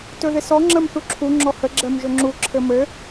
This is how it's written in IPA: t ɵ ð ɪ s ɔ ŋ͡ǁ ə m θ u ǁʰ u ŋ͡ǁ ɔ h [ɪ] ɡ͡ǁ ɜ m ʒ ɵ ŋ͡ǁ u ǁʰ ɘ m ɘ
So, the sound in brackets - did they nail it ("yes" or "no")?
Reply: no